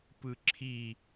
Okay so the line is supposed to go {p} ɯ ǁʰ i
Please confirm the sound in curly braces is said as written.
yes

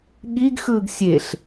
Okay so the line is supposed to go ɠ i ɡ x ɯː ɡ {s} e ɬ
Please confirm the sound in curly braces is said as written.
no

